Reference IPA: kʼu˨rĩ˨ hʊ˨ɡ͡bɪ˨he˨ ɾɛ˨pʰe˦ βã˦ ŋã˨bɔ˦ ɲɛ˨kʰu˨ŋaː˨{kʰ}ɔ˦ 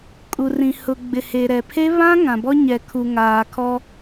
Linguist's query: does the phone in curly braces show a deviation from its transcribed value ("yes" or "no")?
no